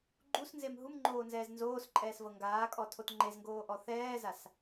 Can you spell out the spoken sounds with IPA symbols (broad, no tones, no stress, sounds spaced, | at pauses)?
ɡ͡ǃ u s n z e m ɦ u m ŋ͡ǃ oː n z ɛː z n z oː s ǃʼ ɛː s v ɤ ŋ ɡ aː kʼ ɔ tʰ o t ŋ͡ǃ e z ŋ ɡ oː ʔ ɔ θ ɛː z a s